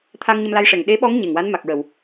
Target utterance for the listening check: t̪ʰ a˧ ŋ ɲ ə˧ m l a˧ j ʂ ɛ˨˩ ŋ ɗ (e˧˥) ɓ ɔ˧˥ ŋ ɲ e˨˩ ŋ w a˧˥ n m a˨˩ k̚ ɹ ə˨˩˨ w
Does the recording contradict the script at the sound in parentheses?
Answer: no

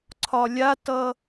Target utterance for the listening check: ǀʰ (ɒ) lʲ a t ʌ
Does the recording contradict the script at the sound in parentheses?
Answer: no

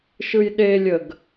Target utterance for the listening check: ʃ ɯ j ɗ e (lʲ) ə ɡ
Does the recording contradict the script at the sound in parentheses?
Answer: no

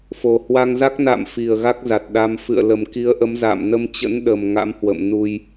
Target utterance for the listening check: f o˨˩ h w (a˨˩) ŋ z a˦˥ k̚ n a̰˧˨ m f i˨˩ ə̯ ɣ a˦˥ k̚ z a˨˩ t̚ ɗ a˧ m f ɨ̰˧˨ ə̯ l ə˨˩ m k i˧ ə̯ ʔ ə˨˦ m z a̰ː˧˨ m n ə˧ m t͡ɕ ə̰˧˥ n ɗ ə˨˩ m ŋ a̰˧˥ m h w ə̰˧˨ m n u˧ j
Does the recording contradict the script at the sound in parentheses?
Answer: yes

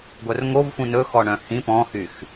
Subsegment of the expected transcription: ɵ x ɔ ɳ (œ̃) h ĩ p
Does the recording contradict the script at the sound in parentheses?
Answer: no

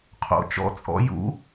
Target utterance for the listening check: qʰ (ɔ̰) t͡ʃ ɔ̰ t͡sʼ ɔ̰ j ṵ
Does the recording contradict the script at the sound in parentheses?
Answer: yes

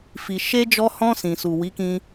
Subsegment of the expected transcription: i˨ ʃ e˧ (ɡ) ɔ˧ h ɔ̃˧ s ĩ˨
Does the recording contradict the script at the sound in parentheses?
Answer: yes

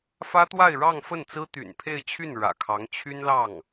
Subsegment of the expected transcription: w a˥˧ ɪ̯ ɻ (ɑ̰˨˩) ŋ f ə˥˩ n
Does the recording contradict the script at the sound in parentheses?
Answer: yes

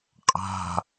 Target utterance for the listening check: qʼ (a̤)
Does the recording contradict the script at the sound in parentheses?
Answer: no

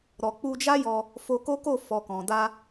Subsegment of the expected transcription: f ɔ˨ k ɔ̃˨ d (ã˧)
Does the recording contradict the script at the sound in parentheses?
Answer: yes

